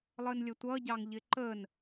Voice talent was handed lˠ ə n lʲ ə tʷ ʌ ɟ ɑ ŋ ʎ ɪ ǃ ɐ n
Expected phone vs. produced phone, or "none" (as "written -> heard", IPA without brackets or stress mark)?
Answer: ɐ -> ə